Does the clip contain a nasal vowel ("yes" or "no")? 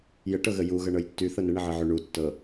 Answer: no